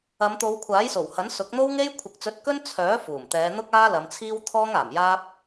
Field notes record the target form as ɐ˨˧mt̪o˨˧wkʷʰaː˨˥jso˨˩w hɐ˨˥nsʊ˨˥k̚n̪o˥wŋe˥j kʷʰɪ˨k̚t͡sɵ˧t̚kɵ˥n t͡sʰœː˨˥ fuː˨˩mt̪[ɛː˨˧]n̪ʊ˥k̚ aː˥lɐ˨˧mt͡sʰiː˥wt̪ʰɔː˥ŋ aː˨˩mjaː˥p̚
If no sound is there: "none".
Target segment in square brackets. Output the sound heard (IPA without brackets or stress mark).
ɛː˨˧